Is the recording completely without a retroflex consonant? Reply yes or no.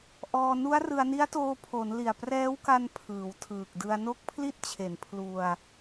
yes